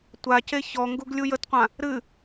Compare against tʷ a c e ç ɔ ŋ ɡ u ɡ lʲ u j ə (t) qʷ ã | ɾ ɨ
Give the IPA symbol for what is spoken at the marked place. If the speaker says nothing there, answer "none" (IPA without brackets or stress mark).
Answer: t